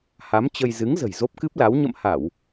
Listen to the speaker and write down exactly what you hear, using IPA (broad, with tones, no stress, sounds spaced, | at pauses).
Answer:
h a˨˦ m t͡ɕ ə˧ j z ɨ˨˦ ŋ z ə̤˨˩ j z o˦˥ p̚ k ɨ˦˥ p̚ l a˨˦ w ɲ ə̰˧˨ m h a˧˩˨ w